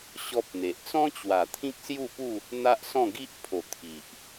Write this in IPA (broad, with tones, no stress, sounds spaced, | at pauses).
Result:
ɕ ɔ˦ p̚ n̪ e˨ ʔ t͡s ɔ̃˦ t͡ɕ w a˨˩ t̪ʰ ĩ˦ k̚ s j u˥˧ p u˥˧ | n̪ a˦ ʔ s ɔ̃˥˧ ɡ i˦ ʔ pʰ o˨˩ t̪ʰ i˨ ʔ